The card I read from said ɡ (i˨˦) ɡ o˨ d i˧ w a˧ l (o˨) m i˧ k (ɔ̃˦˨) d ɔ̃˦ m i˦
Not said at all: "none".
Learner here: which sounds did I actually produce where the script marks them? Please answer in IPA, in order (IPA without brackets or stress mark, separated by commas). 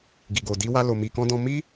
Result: i˨, o˨, ɔ̃˦